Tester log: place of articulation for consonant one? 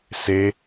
alveolar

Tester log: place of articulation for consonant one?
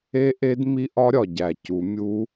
glottal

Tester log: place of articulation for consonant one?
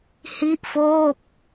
glottal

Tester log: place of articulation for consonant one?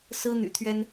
alveolar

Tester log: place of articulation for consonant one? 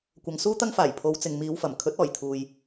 velar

